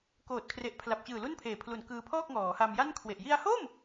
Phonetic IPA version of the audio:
k oː˨˩ t̚ kʰ r e˨˩ ʔ pʰ l a˨˩ p̚ t͡ɕ ɯː˨˩ l u˥˩ n pʰ eː˨˩ pʰ l u˨˩ n k ɯː˧ pʰ ɔː˥˩ k̚ ŋ ɔː˩˦ h a˧ m j a˥˩ n kʰ w e˨˩ ʔ j i˧ a̯ h o˥˩ m

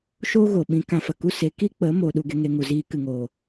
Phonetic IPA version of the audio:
ʃ o˦ ɣ o˨ ɓ ĩ˧ k ã˧ f ə˨ k u˦ s e˨˦ k i˦ k͡p ə˨˦ m o˨ ɗ u˧ ɡ e˧ ŋ e˧ ŋ u˨ z iː˧ k ɨ˨ ŋ oː˨

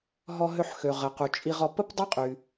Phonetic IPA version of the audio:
ɦ ɔ˧ ɦ ø˧ ħ x ø˩ ʁ ə˩ q u˩ t͡ʃʼ i˧ ʁ ɔ˧ p ə˥ p dˤ œ˥ qʼ y˩

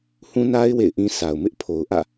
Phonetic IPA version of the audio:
h ũ˦ n a˦ ɪ̯ w ḛ˦˨ ɪ̯ ʔ ĩ˦ sʰ a˨ ʊ̯ m ɪ˦ ʔ pʰ o˨ ʊ̯ ʔ ä̰˦˨

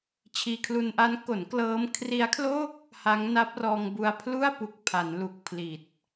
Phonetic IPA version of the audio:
t͡ɕʰ iː˧ kʰ l u˧ n ʔ a˦˥ n k o˩˦ n k l ɤː˦˥ m kʰ r i˦˥ a̯ kʰ l o˥˩ k̚ | h a˦˥ ŋ n a˦˥ p̚ r ɔː˧ ŋ b u˧ a̯ pʰ l u˥˩ a̯ p u˨˩ k̚ pʰ a˩˦ n l u˨˩ k̚ pʰ l i˨˩ t̚

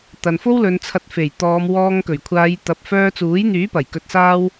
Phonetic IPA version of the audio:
t̪ ɐ˨ n f o˥ w l ɵ˨˧ n t͡sʰ ɐ˧ t̚ f e˨˩ j t̪ ɔː˨˧ m w ɔː˧ ŋ k ɵ˨˩ ɥ kʷʰ aː˨˧ j t̪ ɐ˨ p̚ f œː˧ t͡s uː˨˥ j n̪ yː˨˥ p ɐ˨˩ j k ɵ˧ t̚ s aː˥ w

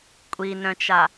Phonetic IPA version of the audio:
kʷʼ i n œ̃ t͡ʃ a

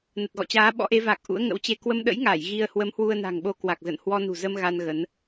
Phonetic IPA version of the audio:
n ə˨˩ t̚ ɣ ɔ̰˧˨ t͡ɕ aː˨˦ ɓ ɔ̰˧˥ ʔ e˨˦ v a˨˩ k̚ ʔ ṵ˧˥ ə̯ ŋ ə̰˧˥ w t͡ɕ e˧ k w ə˧ m ɗ ə̰˧˥ j ŋ aː˧˩ j ɣ i˧ ə̯ h w ə˨˦ m h w u˧ ə̯ n a̤˨˩ ŋ ɓ o˧ k w a˨˩ k̚ z ə̰˧˨ n h w ɔ˧ n ṳ˨˩ z ə˧ m ɣ a˧ n ɣ ə˨˦ n

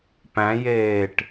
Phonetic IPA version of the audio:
p æ̃ j eː ʈ

